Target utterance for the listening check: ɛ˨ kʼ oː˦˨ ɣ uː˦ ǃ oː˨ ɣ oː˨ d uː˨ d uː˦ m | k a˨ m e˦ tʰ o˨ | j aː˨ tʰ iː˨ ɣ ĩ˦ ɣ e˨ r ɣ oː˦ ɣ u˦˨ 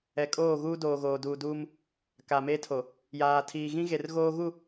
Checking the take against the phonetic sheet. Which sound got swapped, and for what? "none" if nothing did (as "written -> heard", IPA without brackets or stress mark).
ǃ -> d